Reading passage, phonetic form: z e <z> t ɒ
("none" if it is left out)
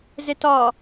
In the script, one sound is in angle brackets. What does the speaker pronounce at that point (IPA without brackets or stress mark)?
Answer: none